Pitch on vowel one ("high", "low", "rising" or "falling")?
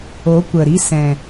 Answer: rising